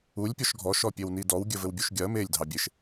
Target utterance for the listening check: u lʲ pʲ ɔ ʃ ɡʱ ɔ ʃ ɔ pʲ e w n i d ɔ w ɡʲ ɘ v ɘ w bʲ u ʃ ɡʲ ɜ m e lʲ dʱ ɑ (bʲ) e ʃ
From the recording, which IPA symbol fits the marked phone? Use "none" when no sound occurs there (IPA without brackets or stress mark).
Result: bʲ